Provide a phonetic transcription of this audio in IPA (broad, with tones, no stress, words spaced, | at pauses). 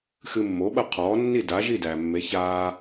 xɨ˧mːo˩˥ɓɐ˥˩qʰɔː˩˥ nːi˥˩da˩˥ʒi˥˩ dæ˩mːe˩˥ çaː˧